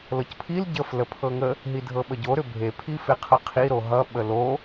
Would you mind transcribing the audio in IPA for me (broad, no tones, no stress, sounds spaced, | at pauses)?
l ɤ c pʰ i l ɟ ə f l ə pʰ ɤ ŋ ə | ɦ i dʱ ɤ ɓ ə ɟ o ɾ ʏ bʱ e pʰ i f e qʰ ʌ qʰ i ɾ o ɦ ʌ ɓ ə l o